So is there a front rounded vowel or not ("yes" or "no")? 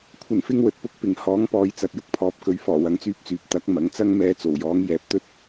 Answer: yes